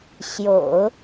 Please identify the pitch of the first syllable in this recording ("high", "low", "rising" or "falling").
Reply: low